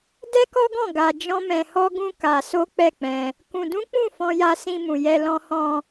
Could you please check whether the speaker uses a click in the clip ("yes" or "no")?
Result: no